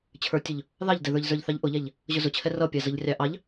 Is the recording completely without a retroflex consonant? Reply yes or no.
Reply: yes